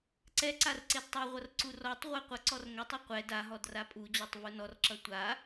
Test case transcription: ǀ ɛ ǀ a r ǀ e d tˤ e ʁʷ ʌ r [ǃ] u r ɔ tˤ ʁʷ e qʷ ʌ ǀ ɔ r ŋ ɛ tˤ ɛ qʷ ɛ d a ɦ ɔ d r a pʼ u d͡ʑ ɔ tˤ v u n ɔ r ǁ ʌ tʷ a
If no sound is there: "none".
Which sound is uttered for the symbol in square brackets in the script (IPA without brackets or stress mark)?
ǀ